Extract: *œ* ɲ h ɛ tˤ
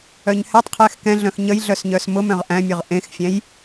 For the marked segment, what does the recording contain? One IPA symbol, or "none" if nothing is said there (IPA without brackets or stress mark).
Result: œ